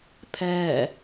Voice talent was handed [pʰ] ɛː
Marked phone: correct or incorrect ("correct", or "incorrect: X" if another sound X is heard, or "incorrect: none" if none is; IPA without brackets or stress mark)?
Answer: correct